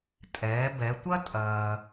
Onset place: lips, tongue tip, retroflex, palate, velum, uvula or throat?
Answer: tongue tip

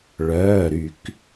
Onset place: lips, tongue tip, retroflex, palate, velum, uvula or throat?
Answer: retroflex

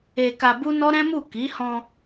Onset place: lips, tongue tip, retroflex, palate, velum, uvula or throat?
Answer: velum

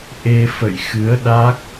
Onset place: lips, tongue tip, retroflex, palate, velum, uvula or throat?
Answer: throat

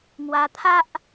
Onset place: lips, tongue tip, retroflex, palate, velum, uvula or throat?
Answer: velum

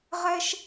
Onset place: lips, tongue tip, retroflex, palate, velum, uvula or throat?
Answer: uvula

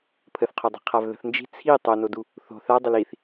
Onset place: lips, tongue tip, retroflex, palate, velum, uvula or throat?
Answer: lips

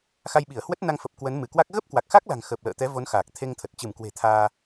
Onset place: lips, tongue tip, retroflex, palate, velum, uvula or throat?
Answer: velum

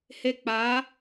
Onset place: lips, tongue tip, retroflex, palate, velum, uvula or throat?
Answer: throat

